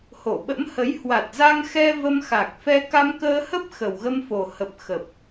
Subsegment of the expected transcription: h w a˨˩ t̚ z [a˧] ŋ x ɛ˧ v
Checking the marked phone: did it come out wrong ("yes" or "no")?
no